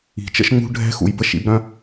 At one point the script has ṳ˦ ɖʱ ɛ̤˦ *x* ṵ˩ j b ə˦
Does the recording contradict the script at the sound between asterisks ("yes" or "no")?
no